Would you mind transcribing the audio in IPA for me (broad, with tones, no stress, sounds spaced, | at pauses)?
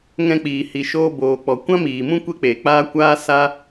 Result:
ŋ ɛ̃˧ k͡p iː˨ h i˨ ʃ oː˧ b oː˨ k͡p ɔ˨ kʷ ã˦ m iː˨ m ũ˦ kʷ e˦ k͡p eː˨ k͡p aː˦ kʷ aː˦ s a˦